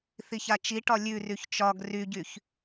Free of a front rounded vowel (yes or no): no